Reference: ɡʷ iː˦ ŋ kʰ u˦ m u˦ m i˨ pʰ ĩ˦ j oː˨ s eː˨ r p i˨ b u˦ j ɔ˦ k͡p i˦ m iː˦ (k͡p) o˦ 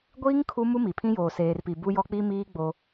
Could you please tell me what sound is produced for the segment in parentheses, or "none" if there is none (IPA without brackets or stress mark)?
ɡ͡b